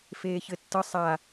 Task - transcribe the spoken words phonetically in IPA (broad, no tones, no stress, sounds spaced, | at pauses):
f eː ç ɘ tː ə sˤ a